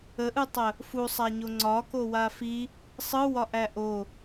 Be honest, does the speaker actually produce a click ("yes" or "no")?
yes